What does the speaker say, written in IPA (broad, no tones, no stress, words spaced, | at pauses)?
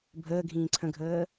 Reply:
bʱəːɡʱĩː ǀʰə̃ɡʱəː